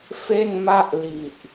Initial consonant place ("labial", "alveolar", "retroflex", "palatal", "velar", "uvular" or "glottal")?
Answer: labial